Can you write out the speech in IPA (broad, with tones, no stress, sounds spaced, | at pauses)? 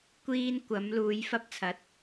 kʷ iː˥ n kʷ ɐ˨˥ m l uː˨˧ j f ɐ˥ p̚ t͡sʰ ɐ˨˥ t̚